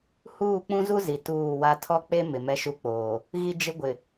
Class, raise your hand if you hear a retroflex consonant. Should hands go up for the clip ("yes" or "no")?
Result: no